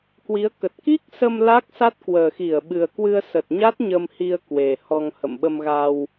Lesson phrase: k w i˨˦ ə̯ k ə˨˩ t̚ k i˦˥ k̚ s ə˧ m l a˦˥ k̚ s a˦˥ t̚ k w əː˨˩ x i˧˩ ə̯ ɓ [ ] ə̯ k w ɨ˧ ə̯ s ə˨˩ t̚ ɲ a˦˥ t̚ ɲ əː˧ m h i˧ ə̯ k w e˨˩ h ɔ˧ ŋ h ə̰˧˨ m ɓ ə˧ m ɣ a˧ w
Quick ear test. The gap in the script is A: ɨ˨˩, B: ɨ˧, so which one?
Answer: A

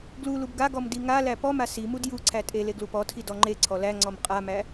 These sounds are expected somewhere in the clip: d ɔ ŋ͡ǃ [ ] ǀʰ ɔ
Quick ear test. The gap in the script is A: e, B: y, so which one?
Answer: A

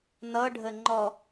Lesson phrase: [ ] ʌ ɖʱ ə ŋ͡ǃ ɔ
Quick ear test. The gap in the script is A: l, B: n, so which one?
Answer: B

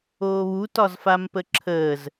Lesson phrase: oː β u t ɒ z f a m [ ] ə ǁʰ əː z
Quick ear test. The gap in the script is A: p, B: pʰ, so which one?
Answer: A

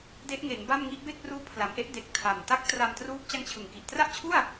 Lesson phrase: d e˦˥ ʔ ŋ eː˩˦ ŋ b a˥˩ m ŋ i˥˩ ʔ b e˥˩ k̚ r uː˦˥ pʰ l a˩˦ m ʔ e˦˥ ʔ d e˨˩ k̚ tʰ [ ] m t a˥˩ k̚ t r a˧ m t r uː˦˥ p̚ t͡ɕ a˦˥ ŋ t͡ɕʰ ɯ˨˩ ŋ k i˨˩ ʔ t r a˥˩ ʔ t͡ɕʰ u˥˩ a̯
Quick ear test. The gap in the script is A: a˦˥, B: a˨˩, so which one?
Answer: B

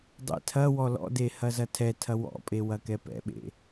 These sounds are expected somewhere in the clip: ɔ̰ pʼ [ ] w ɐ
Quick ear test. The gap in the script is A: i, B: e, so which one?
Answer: B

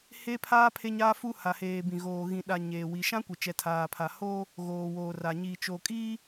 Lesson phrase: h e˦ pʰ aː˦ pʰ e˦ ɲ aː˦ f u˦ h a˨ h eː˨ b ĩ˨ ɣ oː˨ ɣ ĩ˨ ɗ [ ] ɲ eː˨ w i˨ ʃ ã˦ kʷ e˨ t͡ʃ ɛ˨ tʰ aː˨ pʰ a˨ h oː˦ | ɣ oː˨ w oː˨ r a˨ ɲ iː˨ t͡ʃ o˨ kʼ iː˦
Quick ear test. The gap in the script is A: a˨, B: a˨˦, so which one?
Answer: A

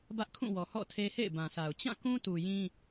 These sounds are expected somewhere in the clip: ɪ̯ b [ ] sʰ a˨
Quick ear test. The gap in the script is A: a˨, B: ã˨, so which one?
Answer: B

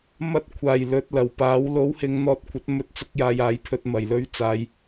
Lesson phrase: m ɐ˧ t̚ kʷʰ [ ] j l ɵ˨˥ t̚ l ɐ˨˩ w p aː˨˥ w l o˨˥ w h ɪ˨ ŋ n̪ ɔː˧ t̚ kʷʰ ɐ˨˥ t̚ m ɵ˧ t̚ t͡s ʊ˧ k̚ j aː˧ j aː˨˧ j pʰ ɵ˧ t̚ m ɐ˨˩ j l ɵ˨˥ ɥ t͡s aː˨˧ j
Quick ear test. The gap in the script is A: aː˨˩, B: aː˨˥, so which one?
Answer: A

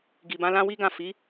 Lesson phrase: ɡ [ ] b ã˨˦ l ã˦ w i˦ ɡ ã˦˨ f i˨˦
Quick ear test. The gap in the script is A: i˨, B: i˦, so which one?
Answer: A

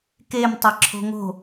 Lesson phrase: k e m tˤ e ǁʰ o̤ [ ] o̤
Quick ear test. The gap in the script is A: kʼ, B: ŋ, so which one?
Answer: B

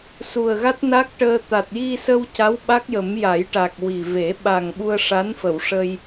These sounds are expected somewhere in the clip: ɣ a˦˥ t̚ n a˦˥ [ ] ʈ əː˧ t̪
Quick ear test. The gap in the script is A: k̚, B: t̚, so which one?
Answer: A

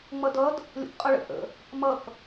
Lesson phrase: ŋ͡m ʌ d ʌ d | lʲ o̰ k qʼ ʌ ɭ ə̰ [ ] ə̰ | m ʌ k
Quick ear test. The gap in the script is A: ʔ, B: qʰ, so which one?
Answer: A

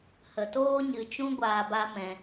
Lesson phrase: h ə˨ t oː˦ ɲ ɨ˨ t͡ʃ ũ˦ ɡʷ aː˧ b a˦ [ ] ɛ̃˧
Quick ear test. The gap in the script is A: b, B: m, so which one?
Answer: B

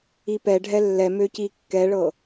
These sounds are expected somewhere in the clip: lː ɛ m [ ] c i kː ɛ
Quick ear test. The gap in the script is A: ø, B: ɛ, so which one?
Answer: A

